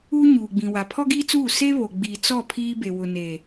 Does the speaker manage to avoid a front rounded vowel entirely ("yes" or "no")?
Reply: yes